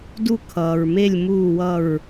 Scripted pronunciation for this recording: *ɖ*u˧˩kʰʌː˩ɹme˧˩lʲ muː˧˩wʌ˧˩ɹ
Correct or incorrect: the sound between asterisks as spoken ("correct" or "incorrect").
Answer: incorrect